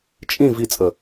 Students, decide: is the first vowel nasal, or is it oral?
nasal